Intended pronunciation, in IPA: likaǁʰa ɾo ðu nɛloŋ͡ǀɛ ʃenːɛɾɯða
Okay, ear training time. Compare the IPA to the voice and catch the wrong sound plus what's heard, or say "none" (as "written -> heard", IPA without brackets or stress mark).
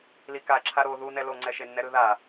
none